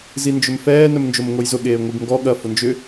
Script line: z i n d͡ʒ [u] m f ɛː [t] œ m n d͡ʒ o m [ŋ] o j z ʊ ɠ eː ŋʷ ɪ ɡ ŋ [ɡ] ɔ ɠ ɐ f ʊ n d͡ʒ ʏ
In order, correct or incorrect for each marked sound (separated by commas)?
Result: incorrect, incorrect, correct, correct